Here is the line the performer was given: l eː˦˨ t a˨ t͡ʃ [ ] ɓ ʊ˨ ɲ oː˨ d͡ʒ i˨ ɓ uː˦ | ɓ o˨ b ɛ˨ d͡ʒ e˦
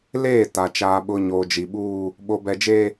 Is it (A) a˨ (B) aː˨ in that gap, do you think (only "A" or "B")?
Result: B